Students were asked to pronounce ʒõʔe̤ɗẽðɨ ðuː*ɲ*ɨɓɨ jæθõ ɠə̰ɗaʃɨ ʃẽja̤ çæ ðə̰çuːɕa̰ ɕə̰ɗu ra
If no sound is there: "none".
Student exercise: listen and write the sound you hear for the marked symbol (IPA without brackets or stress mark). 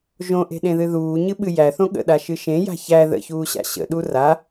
ɲ